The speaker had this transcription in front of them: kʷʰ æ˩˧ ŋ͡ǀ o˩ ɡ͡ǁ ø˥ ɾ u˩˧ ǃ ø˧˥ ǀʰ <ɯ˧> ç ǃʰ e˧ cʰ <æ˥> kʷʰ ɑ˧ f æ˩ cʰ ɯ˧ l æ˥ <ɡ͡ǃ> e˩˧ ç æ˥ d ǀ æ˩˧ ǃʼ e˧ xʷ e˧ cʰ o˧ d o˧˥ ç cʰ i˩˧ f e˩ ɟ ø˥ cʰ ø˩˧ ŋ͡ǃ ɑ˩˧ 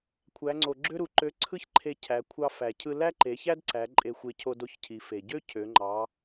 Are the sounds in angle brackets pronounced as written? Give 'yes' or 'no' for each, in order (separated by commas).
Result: no, no, no